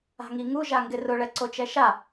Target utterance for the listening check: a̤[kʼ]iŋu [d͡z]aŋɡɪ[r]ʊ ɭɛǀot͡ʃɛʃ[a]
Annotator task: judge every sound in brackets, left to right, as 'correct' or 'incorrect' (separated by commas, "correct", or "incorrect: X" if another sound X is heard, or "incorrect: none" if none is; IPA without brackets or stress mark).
incorrect: ŋ, incorrect: ʒ, correct, correct